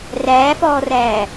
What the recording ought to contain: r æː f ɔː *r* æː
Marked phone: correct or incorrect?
correct